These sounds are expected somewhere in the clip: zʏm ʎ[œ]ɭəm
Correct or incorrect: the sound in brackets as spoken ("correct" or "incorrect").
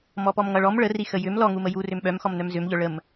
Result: correct